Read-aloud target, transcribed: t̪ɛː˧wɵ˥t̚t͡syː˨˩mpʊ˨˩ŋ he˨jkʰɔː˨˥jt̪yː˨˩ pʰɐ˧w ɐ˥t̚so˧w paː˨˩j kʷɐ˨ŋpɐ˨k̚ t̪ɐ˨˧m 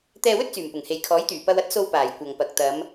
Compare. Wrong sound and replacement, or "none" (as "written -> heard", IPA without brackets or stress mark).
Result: pʰ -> p